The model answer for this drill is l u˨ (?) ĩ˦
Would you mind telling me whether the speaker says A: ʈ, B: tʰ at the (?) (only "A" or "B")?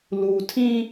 B